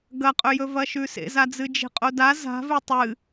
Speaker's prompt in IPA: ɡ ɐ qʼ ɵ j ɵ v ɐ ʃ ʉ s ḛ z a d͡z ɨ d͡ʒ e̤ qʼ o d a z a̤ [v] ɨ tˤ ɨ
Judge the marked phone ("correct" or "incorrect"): correct